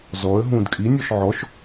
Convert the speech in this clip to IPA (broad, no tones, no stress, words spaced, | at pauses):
zɔə̯ ɦũːdkʼinʲɔʃ ʕɔʃ